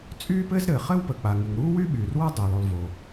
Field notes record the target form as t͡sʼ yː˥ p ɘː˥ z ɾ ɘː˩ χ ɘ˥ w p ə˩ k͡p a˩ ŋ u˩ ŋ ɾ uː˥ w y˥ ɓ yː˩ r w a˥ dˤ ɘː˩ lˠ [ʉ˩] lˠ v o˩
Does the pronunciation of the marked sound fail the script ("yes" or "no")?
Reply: no